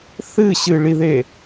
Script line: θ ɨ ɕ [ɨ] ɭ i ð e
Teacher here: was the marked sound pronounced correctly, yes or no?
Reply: yes